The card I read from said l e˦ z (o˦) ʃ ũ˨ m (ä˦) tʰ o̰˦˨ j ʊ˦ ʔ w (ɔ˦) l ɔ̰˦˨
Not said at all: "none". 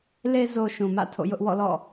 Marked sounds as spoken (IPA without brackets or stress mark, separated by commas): o˦, ä̰˦˨, ɔ̰˦˨